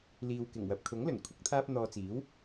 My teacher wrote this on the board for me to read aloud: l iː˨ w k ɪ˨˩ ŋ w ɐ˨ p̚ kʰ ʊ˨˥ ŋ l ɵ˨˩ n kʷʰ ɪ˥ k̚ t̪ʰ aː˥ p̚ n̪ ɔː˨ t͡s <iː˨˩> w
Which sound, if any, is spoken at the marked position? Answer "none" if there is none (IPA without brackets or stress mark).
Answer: iː˨˥